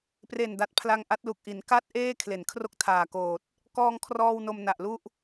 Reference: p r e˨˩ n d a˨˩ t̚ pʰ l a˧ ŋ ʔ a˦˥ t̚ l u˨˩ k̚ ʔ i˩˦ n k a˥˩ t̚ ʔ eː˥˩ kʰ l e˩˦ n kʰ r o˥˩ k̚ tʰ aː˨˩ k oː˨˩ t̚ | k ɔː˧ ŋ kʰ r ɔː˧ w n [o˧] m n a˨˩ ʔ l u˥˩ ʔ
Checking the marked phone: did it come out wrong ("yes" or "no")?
no